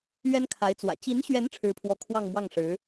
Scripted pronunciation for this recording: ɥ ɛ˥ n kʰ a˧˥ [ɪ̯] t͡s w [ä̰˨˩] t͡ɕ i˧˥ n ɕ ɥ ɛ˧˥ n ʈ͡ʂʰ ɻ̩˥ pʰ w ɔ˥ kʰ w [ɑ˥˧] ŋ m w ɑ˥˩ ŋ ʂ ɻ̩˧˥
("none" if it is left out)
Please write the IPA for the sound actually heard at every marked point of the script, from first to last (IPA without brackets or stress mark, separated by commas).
ɪ̯, ä̰˨˩, ɑ˥˧